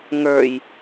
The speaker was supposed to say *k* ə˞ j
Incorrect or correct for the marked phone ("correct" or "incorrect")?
incorrect